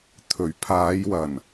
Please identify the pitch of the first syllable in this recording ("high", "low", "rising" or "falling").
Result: low